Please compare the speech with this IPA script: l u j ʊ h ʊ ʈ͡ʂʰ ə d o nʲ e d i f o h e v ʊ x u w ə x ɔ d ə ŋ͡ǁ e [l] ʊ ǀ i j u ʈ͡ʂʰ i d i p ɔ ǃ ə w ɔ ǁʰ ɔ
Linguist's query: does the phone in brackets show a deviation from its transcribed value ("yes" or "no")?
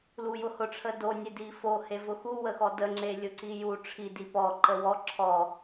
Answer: yes